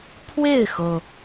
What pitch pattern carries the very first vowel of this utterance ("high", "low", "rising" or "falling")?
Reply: falling